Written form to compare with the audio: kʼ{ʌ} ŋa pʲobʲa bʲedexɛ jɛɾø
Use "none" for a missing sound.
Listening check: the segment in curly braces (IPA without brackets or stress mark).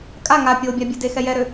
a